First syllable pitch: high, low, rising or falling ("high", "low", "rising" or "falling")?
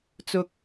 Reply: high